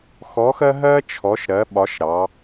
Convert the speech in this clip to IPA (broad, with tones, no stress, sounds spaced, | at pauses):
x ɔ˨˦ x ɜ˦ ɦ ɜ˦ t͡ʃʰ ɔ˨˦ ʃ ɾ ɜ˨˦ ɓ ɒ˨˦ ʃ ɾ ɑ˨˦